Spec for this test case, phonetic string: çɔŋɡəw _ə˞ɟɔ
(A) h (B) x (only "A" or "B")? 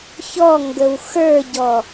B